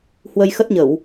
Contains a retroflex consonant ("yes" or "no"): no